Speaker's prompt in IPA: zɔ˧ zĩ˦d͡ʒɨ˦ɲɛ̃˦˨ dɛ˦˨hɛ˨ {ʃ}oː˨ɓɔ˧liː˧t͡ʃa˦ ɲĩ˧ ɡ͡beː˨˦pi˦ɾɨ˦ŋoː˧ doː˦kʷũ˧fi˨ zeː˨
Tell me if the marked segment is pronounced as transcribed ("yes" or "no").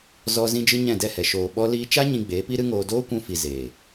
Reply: yes